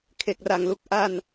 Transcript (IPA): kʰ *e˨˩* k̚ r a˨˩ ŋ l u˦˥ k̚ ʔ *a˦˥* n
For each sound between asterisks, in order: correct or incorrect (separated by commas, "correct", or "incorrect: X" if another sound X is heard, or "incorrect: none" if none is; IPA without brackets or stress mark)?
correct, incorrect: a˧